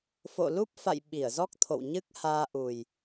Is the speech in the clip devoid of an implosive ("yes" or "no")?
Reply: no